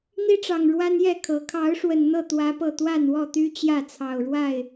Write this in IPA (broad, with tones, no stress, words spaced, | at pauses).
n̪i˦ʈ͡ʂɑ˨˩ŋ ɻwa˦njɛ˥˨kʰɤ˨˦ kʰɑ˨˦ʊ̯ʂwə˨˩n n̪ɤ˥˨t̪wä˨˦pɤ˨˩ t̪wa˥˨nwɔ˥˨t̪y˦ t͡ɕjä˥˨ t͡sʰɑ˨˩ʊ̯ɻwa˥˨ɪ̯